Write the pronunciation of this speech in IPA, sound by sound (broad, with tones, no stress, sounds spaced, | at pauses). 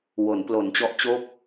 w o˩˦ n p l o˩˦ n t͡ɕ ɔ˦˥ ʔ t͡ɕ o˥˩ k̚